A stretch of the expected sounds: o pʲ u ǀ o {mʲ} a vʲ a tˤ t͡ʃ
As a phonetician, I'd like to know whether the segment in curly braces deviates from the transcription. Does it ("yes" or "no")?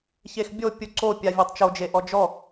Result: yes